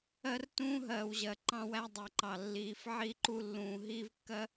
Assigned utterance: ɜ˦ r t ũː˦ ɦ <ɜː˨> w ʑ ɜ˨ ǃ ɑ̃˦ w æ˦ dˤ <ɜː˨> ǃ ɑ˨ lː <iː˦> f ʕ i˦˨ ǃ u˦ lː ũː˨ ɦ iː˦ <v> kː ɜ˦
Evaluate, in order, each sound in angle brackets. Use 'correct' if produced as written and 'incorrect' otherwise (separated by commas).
correct, incorrect, incorrect, correct